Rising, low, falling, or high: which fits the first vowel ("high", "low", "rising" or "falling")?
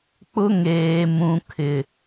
high